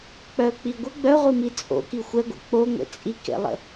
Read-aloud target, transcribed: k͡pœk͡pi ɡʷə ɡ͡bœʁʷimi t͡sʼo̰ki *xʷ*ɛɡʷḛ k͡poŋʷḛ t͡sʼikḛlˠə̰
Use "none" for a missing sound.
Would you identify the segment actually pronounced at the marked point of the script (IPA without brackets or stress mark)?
xʷ